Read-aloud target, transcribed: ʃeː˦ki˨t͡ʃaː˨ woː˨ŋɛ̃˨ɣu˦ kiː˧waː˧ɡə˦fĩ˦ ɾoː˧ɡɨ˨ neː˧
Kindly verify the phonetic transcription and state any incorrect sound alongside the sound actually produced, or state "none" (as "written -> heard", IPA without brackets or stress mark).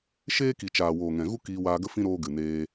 none